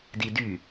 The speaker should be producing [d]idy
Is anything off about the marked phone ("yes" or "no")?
no